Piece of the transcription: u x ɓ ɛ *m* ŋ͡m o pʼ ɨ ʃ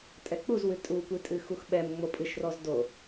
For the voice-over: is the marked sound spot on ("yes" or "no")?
yes